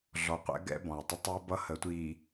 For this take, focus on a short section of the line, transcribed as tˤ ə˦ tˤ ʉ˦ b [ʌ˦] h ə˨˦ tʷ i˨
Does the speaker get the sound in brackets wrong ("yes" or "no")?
no